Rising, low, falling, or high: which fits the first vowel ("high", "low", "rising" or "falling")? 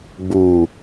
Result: low